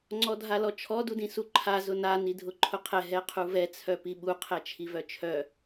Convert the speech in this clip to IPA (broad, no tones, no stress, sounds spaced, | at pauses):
ŋ͡ǀ ɔ dʱ a l ɔ t͡ʃʰ ɔ d u d ĩ s u ǃʰ a z ʊ n a n i dʱ ʊ ǃʰ ʊ qʰ ɛ ɦ ɛ qʰ u v ɛ t͡sʰ œ p i ɓ u qʰ ɛ t͡ʃʰ i v œ t͡ʃʰ œ